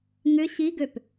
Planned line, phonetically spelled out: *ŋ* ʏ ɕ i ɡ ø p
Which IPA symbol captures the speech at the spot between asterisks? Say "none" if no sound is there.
ŋ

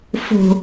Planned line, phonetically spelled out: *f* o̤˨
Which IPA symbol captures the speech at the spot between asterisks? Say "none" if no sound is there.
f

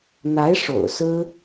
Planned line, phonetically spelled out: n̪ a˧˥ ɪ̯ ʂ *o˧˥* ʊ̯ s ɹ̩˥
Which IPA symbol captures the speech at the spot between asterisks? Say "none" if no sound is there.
o̰˨˩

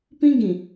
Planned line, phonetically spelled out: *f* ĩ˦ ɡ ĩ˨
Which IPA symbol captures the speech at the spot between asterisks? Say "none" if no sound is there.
p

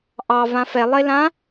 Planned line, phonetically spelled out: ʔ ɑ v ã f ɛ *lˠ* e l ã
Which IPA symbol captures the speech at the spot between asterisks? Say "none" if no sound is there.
lˠ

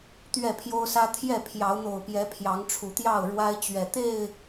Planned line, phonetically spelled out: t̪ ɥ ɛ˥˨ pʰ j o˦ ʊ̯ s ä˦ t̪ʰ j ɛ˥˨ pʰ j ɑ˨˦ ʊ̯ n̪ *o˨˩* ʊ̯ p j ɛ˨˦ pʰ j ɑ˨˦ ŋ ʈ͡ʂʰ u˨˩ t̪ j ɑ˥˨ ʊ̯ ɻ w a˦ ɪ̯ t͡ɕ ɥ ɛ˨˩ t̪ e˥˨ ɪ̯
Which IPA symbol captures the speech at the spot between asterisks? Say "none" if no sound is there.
o˨˩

